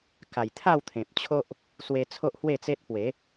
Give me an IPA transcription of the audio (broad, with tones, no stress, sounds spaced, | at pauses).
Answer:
k a˨˩ j t̪ʰ a˥˧ w t̪ʰ ẽ˨ p̚ t͡ɕʰ o˦ ʔ | s w e˧ t͡sʰ o˦ ʔ h w e˥˧ t͡s e˦ t̚ p w e˨˦